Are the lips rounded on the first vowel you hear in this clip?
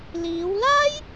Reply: no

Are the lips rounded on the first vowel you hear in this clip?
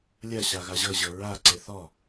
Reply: no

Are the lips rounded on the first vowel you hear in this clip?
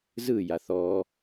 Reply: no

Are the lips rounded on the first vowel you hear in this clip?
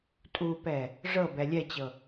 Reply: yes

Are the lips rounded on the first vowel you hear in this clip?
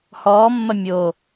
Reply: yes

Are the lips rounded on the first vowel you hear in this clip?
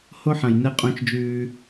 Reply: yes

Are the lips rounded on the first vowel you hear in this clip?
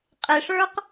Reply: no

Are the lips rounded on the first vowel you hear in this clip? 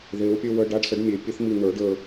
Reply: no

